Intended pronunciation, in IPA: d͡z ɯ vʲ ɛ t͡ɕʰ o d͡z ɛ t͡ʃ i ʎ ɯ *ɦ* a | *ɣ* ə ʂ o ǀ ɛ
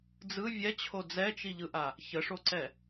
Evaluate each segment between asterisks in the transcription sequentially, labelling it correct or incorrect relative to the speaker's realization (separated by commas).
incorrect, incorrect